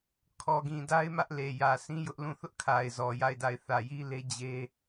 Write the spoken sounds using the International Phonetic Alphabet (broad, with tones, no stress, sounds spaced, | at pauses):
kʰ ɔ˨ ɡ ĩ˨ d a˦ ɪ̯ m ä˦ ʔ l e˨ j ä˨ sʰ ĩ˦ j ʊ˦ ʔ l ũ˦˨ θ ʊ˦ ʔ kʰ a˨ ɪ̯ z ɔ˨ j a˦˨ ɪ̯ d a˦˨ ɪ̯ θ ä˨ j i˦ l e˦ d͡ʑ e˦